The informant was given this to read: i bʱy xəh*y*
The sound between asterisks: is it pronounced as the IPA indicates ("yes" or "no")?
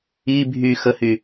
yes